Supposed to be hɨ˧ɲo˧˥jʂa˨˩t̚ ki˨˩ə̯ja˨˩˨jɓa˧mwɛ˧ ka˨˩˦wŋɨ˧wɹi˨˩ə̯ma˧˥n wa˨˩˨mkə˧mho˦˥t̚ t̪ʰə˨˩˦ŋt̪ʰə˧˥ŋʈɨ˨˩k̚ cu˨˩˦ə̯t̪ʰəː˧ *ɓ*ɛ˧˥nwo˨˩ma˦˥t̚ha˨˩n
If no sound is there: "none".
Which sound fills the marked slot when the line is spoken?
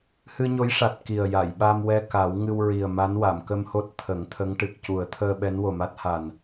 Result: ɓ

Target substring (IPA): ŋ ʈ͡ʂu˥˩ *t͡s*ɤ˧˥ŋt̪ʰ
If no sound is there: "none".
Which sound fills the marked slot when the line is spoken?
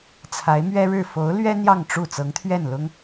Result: t͡s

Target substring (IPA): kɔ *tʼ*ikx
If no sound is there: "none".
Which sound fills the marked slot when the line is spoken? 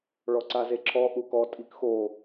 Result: tʼ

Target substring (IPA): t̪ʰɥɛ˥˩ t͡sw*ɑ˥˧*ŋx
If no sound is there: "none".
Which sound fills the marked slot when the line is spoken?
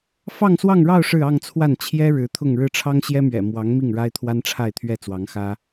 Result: ɑ˧˥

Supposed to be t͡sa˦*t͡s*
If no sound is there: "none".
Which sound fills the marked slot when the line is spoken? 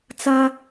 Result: none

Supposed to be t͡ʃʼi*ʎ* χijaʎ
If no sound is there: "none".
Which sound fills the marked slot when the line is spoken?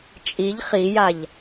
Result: ʎ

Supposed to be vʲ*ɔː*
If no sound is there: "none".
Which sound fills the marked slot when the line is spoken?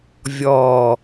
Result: ɔː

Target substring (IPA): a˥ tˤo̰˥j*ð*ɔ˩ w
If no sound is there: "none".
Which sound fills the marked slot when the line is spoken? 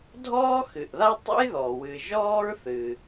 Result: ð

